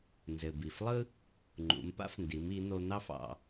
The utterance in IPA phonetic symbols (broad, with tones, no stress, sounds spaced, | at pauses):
n z ɘ˩ b i˩ f lˠ ɯ˥ | ŋ͡ǃ ṵ˩˧ m p a̰˥ f n d i˩˧ m i˩˧ n̪ o˧ n̪ ɑ˥ f ɑ̰˧